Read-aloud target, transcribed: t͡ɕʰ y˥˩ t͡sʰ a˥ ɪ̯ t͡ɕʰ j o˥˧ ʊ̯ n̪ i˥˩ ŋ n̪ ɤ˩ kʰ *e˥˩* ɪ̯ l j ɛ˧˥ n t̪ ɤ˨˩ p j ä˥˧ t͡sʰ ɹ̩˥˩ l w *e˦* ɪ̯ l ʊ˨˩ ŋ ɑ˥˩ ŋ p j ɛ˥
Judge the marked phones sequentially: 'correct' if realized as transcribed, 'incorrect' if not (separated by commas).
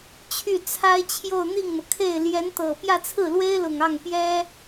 correct, incorrect